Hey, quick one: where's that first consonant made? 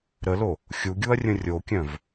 tongue tip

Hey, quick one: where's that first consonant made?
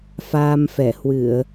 lips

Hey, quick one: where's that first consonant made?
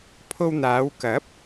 lips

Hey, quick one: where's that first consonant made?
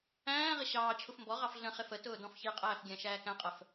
uvula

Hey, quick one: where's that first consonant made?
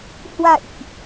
throat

